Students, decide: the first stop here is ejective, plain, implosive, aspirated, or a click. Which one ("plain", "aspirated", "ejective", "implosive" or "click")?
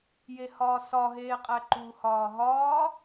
ejective